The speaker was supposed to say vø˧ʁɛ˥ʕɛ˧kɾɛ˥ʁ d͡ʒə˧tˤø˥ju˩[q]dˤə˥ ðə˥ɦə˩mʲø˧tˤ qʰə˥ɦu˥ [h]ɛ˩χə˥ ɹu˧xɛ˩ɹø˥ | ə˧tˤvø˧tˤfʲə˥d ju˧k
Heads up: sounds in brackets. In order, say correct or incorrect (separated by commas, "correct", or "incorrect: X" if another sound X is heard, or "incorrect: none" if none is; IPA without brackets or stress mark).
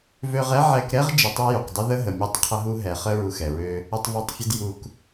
correct, incorrect: ɦ